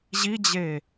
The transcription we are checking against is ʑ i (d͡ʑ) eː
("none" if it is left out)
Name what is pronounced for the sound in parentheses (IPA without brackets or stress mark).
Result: d͡ʑ